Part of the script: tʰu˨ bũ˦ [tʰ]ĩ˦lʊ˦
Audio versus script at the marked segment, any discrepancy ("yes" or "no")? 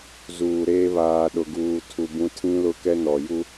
no